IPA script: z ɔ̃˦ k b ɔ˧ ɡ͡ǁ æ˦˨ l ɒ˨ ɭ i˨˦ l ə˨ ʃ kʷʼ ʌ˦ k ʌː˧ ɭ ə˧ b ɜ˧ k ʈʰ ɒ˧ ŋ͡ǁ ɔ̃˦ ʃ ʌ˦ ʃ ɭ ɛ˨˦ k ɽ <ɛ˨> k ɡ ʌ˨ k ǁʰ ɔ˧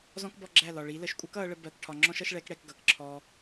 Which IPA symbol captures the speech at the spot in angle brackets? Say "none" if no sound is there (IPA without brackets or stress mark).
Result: ɛ˧